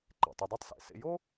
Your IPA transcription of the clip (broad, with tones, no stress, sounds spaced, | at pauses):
ǃ ḛ˩ tˤ i˧ dˤ a˥ tˤ s ḛ˩ s ḛ˧ j o˥